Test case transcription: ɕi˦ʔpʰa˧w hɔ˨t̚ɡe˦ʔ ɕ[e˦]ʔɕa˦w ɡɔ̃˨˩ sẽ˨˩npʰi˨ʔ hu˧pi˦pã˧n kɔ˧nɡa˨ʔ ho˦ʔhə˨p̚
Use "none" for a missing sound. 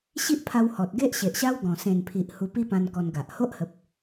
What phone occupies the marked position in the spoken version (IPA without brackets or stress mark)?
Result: e˨